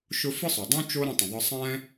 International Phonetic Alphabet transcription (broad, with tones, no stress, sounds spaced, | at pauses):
ʃ ʊ˦ f ɨ˥ sˤ ʊ˩ dˤ õ˥ t͡ʃ o˦ ɾ ə̃˦ tˤ ə̃˩ ðˤ ə˦ sˤ ɛ̃˦